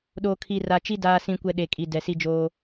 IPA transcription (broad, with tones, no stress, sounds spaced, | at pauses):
ɗ oː˨ kʰ i˨ r a˨ t͡ʃ i˦ d aː˨ s ĩ˨ kʷ ɛ˨ ɗ e˨ kʼ i˨ d ɛ˨ s i˦ d͡ʒ oː˦